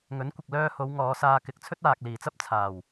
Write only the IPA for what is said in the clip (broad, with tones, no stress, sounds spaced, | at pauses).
ŋ ɵ˨˥ n kʷ ɪ˨ k̚ l œː˧ h o˨˧ w ŋ ɔː˨˧ s aː˧ k ɪ˨ k̚ t͡sʰ ɵ˥ t̚ aː˨ k̚ l iː˨˩ t͡s ɐ˥ p̚ t͡sʰ aː˨˩ w